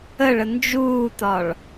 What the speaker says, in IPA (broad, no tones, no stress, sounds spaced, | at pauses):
ə ɭ ə n d͡ʒ uː t ɒ ɭ